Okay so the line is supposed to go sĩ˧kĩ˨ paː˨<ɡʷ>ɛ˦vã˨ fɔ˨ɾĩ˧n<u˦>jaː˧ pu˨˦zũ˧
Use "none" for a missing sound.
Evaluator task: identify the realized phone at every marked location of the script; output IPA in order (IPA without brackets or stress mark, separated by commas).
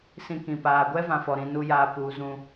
ɡʷ, u˦